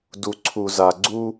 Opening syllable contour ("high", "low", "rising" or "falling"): low